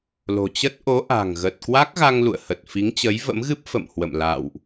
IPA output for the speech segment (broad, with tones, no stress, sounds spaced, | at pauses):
l o̤˨˩ t͡ɕ ə˦˥ t̚ ʔ o˨˦ ʔ a̤˨˩ ŋ ɣ ə˨˩ t̚ k w a˦˥ k̚ ɣ a˧ ŋ l ṵ˧˨ ə̯ h ə˨˩ t̚ f i˨˦ ŋ t͡ɕ ə˨˦ j v ə̰˧˥ m ɣ ɨ˦˥ p̚ f ə̰˧˨ m h w ə̰˧˨ m l a̰ː˧˨ w ʔ